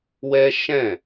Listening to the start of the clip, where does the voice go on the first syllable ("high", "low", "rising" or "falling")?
high